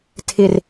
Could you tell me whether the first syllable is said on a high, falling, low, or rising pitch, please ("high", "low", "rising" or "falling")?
low